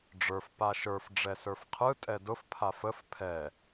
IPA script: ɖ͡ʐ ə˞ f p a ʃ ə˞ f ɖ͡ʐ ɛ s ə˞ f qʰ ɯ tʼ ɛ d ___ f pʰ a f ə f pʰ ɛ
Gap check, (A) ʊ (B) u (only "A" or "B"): A